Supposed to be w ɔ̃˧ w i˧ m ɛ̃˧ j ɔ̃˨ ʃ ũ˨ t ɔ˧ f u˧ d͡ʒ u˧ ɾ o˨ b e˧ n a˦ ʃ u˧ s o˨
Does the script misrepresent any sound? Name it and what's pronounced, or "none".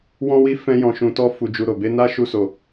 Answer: m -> f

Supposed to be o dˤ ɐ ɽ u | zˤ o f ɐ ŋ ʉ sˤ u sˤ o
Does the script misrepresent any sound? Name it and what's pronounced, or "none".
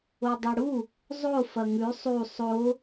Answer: none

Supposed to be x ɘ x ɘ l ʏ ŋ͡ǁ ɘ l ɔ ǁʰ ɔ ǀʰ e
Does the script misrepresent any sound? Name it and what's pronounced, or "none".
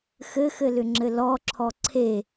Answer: none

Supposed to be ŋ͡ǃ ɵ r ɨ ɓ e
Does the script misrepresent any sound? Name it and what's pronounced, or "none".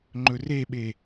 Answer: ɨ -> e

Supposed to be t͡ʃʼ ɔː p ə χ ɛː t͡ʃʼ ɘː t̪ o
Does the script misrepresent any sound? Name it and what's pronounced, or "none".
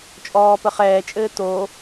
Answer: none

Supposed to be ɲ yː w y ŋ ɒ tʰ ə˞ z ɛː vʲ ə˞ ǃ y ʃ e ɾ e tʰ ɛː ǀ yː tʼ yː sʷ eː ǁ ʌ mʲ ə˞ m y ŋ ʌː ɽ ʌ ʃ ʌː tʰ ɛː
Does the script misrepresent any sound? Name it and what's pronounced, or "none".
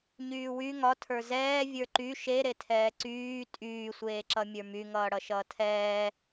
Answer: none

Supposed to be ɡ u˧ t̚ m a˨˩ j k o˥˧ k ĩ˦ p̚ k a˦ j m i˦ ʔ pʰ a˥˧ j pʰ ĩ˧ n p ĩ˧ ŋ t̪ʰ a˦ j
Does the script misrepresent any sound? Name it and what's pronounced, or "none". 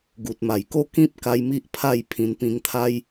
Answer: u˧ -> u˨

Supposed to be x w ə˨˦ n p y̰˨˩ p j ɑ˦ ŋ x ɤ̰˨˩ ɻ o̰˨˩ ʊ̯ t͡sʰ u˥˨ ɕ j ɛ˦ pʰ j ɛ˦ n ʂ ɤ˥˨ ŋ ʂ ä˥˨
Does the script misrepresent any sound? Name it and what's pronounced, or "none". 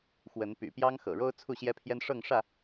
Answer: o̰˨˩ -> o˦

